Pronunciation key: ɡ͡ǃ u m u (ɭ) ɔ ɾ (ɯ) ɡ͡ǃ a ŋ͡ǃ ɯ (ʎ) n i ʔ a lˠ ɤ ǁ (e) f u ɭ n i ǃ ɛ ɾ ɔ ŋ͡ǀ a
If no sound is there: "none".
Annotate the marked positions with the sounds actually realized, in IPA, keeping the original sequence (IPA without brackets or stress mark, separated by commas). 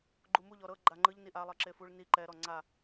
ʎ, ɤ, ʎ, e